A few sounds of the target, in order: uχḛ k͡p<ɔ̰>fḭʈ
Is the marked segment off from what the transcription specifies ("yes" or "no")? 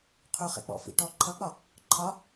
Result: no